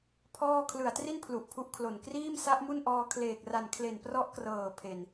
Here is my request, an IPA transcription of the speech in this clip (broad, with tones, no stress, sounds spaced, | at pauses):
pʰ ɔː˥˩ kʰ l ɯ˨˩ a̯ t r i˥˩ n pʰ l u˨˩ ʔ pʰ u˦˥ ʔ kʰ l o˨˩ n k r iː˥˩ m s a˦˥ ʔ m u˥˩ n ʔ ɔː˧ kʰ l eː˨˩ k̚ r a˨˩ n kʰ l e˨˩ n p r ɔ˦˥ ʔ k r ɤː˨˩ pʰ e˨˩ n